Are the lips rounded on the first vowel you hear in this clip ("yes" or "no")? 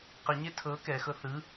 no